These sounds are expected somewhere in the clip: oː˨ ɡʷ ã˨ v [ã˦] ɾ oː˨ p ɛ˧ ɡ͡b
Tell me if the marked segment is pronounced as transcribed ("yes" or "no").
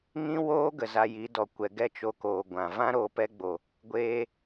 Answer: yes